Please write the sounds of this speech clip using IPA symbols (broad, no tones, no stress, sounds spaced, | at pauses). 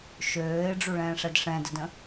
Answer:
ʃ øː ɪ̯ ɖ͡ʐ u ɭ ɛ̃ː ʂ ɛ d ʂ ɛ̃ d ə d ə̃